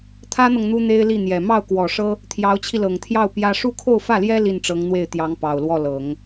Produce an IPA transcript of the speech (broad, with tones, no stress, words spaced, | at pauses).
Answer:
t̪ʰä˥n̪ɤ˨ŋ n̪u˥n̪e˥ɪ̯li˥˩n̪jɛ˨˩ mɑ˥˩ʊ̯kwɔ˨˩ʂɤ˥ | t̪ʰjɑ˧˥ʊ̯t͡ɕʰi˧lɤ˨˩ŋt̪ʰjɑ˥˩ʊ̯ pjä˥ ʂu˥˧kʰo˥˧ʊ̯fä˥˩ljɛ˥ li˥˩nʈ͡ʂɤ˧˥ŋn̪we˥˩ɪ̯t̪jɑ˧˥ŋ pɑ˨˩ʊ̯lwɔ˥˩lɤ˨˩˦ŋ